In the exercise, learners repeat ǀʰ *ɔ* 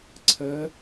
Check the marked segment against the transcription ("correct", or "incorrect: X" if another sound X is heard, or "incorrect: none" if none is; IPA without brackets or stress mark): incorrect: ə